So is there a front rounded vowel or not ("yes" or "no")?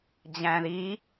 no